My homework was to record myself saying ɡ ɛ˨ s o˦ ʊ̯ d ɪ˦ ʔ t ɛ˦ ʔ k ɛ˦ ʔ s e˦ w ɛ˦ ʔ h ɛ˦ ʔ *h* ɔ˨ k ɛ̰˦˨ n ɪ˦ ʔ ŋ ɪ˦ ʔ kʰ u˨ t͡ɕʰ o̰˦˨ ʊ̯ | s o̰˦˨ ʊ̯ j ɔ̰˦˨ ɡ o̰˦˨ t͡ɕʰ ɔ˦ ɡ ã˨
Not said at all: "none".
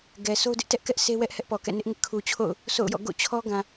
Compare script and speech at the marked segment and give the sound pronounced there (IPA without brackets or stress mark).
p